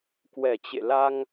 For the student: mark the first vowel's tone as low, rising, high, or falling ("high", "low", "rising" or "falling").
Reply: low